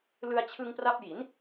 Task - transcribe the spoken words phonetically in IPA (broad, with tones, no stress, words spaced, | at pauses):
lɯ˧a̯t͡ɕʰɯ˧ŋpra˦˥p̚ji˩˦n